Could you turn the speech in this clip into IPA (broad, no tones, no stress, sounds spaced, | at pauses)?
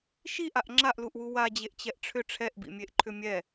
ʃ i ʔ a ʔ ŋ͡ǁ a ʔ l u ʔ w u w a d͡ʑ e ʔ t͡ɕ ɛ ʔ ʈ͡ʂʰ ʏ ʈ͡ʂʰ ɛ ʔ b ḭ mʲ e ʔ ǃʰ ʏ mʲ ɛ